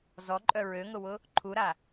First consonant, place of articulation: alveolar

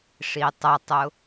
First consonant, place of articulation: retroflex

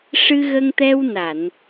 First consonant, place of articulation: retroflex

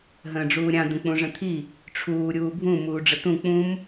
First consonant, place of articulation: glottal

